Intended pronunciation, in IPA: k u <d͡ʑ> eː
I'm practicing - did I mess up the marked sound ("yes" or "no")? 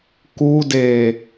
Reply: yes